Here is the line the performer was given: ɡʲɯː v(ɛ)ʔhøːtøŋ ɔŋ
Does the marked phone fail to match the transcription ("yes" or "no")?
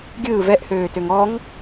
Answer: no